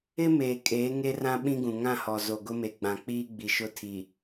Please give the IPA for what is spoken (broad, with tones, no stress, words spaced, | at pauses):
ɪ˦ meː˨kʼeː˨˦ ŋe˦rã˦ ɓĩ˦ɡũ˨ ŋã˦˨hɔ˨zo˨ ɡʊ˦me˨ ɡ͡bã˨k͡piː˦ɡ͡bi˨ʃʊ˦˨ tʰi˨